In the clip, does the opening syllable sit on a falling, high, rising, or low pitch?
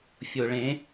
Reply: low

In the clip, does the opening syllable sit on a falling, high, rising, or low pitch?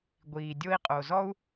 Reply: low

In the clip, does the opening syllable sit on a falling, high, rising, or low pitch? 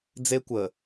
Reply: high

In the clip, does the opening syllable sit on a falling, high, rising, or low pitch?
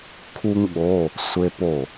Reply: high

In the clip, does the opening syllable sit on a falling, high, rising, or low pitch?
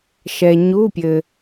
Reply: low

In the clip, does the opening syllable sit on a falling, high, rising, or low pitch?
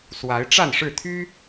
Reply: rising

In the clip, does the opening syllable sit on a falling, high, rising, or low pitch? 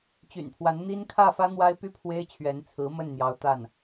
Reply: low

